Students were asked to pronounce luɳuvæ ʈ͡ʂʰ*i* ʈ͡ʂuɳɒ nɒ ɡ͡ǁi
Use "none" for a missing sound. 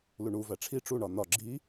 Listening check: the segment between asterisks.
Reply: i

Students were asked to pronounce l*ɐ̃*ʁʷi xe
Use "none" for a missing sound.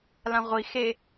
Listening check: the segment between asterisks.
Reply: ã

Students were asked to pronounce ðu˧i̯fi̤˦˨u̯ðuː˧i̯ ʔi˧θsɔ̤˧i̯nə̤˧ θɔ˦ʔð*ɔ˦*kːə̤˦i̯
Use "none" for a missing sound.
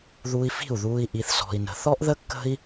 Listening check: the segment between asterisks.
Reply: ə˦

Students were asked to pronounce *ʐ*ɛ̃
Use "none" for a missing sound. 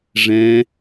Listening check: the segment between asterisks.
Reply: ʐ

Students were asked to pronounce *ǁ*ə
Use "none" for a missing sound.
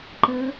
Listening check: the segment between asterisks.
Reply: ǃ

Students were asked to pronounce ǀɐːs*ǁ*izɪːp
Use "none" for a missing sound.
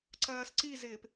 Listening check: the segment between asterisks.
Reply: ǀ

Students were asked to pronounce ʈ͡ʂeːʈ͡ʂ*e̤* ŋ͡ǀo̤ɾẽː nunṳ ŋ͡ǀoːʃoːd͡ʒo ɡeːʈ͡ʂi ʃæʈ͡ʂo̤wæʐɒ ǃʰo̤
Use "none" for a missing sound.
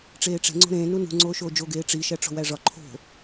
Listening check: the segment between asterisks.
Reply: e̤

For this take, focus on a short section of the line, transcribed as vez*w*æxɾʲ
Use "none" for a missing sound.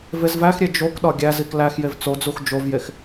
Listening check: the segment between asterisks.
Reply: v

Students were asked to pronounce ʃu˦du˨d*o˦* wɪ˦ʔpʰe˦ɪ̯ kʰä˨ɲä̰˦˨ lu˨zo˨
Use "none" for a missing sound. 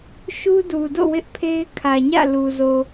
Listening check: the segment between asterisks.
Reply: o̰˦˨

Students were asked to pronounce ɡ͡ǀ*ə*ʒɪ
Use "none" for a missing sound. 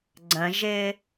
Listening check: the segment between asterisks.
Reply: ə̃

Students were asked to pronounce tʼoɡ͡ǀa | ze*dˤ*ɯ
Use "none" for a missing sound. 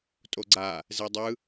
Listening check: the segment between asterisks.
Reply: dˤ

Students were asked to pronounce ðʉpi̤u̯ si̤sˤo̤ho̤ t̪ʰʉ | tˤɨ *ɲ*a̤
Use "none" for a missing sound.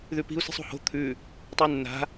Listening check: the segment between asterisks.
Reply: nː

